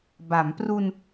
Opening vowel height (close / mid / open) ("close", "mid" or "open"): open